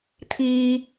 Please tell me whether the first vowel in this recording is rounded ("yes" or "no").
no